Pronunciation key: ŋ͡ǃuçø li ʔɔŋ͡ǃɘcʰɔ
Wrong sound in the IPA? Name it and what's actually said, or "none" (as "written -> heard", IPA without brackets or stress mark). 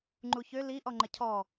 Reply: none